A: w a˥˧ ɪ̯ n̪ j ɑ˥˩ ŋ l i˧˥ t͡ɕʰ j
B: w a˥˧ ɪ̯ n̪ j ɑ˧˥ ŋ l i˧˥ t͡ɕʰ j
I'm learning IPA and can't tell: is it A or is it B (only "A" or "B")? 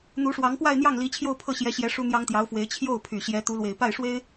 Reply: A